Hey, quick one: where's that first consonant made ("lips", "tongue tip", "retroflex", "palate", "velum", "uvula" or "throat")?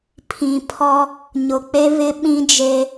lips